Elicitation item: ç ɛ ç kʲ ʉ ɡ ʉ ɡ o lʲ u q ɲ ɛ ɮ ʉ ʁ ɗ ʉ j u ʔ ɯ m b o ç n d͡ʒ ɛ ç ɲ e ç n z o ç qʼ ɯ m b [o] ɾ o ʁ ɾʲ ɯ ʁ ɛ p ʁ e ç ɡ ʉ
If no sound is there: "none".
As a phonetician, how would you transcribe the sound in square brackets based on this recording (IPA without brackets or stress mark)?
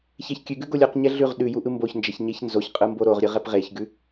o